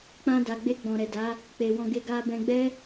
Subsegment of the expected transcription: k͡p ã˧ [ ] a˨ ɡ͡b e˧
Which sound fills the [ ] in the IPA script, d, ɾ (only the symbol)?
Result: d